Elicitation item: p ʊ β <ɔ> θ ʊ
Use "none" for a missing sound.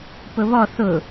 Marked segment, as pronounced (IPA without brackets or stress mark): ɔ